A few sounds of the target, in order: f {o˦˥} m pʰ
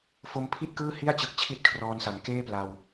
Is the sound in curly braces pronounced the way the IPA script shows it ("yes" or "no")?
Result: yes